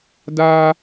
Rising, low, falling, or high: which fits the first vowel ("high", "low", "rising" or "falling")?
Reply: high